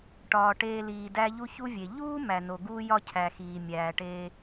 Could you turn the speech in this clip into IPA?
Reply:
ʈ ɒː˩ ʈ eː˨ l iː˩ d æ˦ ʎ u˥ ç u˦ vʲ e˩ ʎ uː˥ m æ˨ n o˨ ɡ uː˥ j ɒ˥ cʰ æ˨ x iː˩ mʲ æː˨ ʈ eː˦

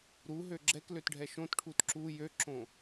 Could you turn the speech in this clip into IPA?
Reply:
ɾ u ɦ ø ɡ͡ǁ ɛ k l ø t ɖʱ ɛ ʃ õ t ʈʰ u t ǁ u j ø ǁ õ

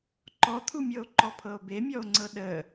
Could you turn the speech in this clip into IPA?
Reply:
ǃ ɔ t̪ʰ u mʲ ɤ o̯ ǃ ɔ pʰ ɤ o̯ b e mʲ ɔ o̯ ŋ͡ǀ ɤ ɗ ə

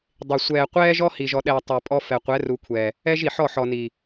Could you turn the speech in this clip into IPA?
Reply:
dˤ e˨ sʷ ɛː˨ qʷ ɛː˦ ʒ ɔ˦ h i˨ ʒ ɔ˨ ɗ ɛː˨ tˤ ɛ˨ pʼ ɔ˦ f ɛ˨ qʷ ɛ˨˦ r u˨ kʷʰ ɛː˨ | ɛ˦ ʒ i˨ ħ ɔ˦˨ ħ ɔ˨ n iː˨

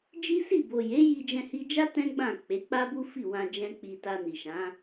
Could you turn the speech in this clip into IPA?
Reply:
d͡ʒ i˦ s i˦˨ b o˨ j e˨˦ j i˧ d͡ʒ ɛ̃˧ h i˧ d͡ʒ a˦ t ɛ̃˦ ɡ͡b ã˦˨ k͡p e˨˦ k͡p a˦ b u˦ f i˦˨ w ã˧ d͡ʒ ɛ̃˦ k͡p i˧ t a˧ n i˨ ʃ ã˨˦

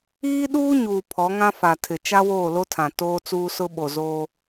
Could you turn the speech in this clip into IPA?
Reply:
iː˦ ɗ uː˦ ɲ uː˨ pʰ ɔ˨˦ ŋ ã˦ f a˨ tʰ ɪ˨ t͡ʃ a˦ w oː˦˨ l o˦ tʰ ã˨ t oː˦ t͡s uː˦ s ʊ˦ ɓ o˨ z oː˦

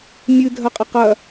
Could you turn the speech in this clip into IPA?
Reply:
mʲ ɨ dʱ ɐ qʼ ɐ q ɐ

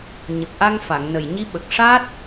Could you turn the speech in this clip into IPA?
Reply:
ɲ ə˨˩ k̚ ʔ a˧ ŋ f a˨˩˨ ŋ n ə˨˩ j ɲ i˧˥ ɓ ə˨˩ k̚ ʂ a˦˥ t̚

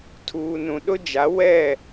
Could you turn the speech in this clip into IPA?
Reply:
tʰ uː˨ n ũ˨ ɗ ʊ˦ d͡ʒ a˨˦ w ɛ˦˨

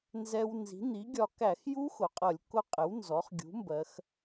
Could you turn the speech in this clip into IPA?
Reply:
n z ɛ˧ w n z i̤˩˥ n̪ i˩˥ ɡʲ ɒ˧ k æ˧˩˧ x j u˦˥ x ʊ˩˧ qʼ ʌ˧˩˧ lʲ k ʊ˦˥ qʼ ɪ˩˥ w n z ɔ˩˥ χ ɡʲ ṳ˩˥ m b ɜ˩˧ x

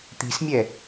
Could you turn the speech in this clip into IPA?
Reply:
t̪ i̤ s mʲ ɛ

